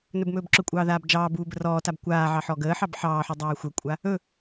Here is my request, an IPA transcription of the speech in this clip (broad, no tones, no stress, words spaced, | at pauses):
nɵbmɵːbǁɵkʷʼɑː ðaːbd͡ʒɑːbuː bərɔːtab kʷaːʕɑ ħɔɡəːħɑb ħɑːħu dˤaːxʷəkʷʼa | ɵ